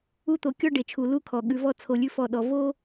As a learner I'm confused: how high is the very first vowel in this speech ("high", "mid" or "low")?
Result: high